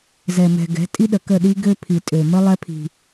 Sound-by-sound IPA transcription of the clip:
z ɛ˨ m ɛ̤˨ ɡ ɛ̤˨˦ tʼ i˦ ɗ ə˨ k ə˦˨ ɗ i˦ ɡ ø˦ pʰ i˨ tʼ ø˨ m ə˦ lˠ ɛ˦ pʰ i̤˨

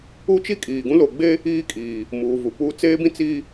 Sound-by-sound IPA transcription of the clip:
u˦ t͡ʃ i˦ kʼ iː˨ ɡ ũ˦ l o˨ ɡ͡b e˦ | iː˦ kʼ iː˨ | m uː˨ v u˨ p uː˦ t͡s eː˦ b ĩ˦ t͡s iː˦

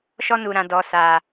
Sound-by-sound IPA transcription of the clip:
ʃ ɔ˦ n u˨ ɾ ã˨ d ɔ˨ s a˨

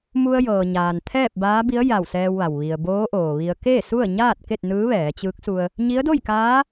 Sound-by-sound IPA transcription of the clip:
m u˧ ə̯ j ɤː˩ ɲ aː˩ n t̪ʰ ɛː˥˨ p̚ b aː˧˥ b i˧˥ ə̯ j a˧˩ w s ɛː˧ w ʋ a˩ w ʋ i˩ ə̯ b oː˧˥ ʔ oː˩ ʋ i˧ ə̯ k e˥˨ s u˥˨ ə̯ ɲ aː˥˨ t̚ k e˥˨ t̚ n ɯː˧˥ ʋ ɛː˩˧ t͡ɕ ɯː˧˥ k̚ s u˧ ə̯ | ɲ i˧˥ ə̯ d o˥˨ j k aː˧˥

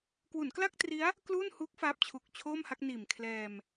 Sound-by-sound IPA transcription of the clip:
k w u˩˦ n k l a˥˩ k̚ t r i˦˥ a̯ | k l uː˥˩ n h u˦˥ k̚ f aː˦˥ p̚ t͡ɕʰ u˨˩ k̚ t͡ɕʰ oː˥˩ m h a˦˥ k̚ n iː˨˩ m kʰ l ɛː˧ m

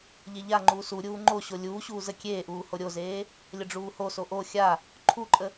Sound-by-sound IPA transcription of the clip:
ʎ e ʎ a ŋ͡ǃ uː s u ɾʲ uː ŋ͡ǃ o ɕ o lʲ uː ɕ uː z ə kʲ eː ʔ uː h o ɾʲ o z eː | lʲ ə ɖ͡ʐ uː h o s o ʔ o xʲ a | ǃʰ u ǃʼ ə

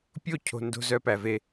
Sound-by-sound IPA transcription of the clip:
pʲ o˦˨ cʰ o̤˨ n d o̤˦ z œ˦ p æ˨ v e˦

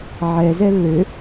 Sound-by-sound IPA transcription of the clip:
ʕ ɛ z ɛ lː ø

